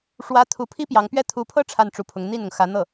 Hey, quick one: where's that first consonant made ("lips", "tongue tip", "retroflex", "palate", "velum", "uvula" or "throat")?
retroflex